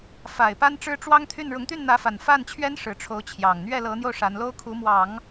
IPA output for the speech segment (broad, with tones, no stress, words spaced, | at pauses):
fa˨˩ɪ̯ pa˥nʈ͡ʂɻ̩˥ʈ͡ʂwɑ˥ŋ t̪ʰy˥˩n ɻʊ˧˥ŋt̪y˥˩nn̪ä˧˥fa˨˩n fa˥˩nt͡ɕʰɥɛ˥n ʂɻ̩˧˥ʈ͡ʂʰo˧˥ʊ̯t͡ɕʰjɑ˨˩ŋ n̪ɥɛ˥˩lɤ˧˥n̪jo˧ʊ̯ ʂa˧˥n lo˥ʊ̯kʰu˧˥mwɑ˨˩˦ŋ